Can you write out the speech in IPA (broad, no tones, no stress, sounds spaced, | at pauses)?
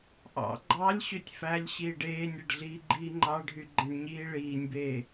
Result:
ʔ ɑ̰ ɡ͡ǃ ɑ lʲ ɕ ø tʲ f æ lʲ ɕ iː ɖ eː nʲ e ɖ ɮ iː ɡ͡ǃ iː ŋ͡ǃ ɑ ɖʱ y ɡ͡ǃ ẽ ɖ ɲ iː ɭ iː nʲ b eː